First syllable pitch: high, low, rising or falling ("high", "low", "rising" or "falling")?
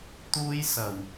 high